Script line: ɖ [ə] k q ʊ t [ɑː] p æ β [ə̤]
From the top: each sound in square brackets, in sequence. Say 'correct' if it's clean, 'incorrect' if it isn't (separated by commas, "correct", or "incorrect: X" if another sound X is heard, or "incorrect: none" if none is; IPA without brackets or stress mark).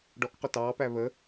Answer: incorrect: ɔ, correct, incorrect: ə